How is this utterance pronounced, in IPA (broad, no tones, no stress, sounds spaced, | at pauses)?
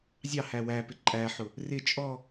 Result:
zʲ ɑ h æ w æ p ɪ ǃʼ æ ħ ʊ | r ɪ t͡ʃʼ ɔ